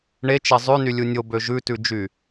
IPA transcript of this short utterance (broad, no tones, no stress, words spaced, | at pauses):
ɳet͡ʃɛ zˤʉnylʲu nʲobø ʒʉtʉd͡ʒy